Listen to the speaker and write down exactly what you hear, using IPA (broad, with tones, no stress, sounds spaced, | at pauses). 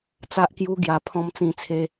t͡s a˦ ʔ k j u˦ ɡ j a˧ pʰ ɔ̃˧ m t͡s ĩ˧ t͡sʰ e˧